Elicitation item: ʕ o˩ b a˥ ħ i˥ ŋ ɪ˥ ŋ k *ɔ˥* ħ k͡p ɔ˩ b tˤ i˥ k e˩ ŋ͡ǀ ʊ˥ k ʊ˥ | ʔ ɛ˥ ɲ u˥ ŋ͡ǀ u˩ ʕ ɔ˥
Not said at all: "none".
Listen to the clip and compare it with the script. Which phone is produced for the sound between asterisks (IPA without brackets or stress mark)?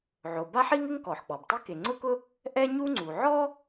ɔ˩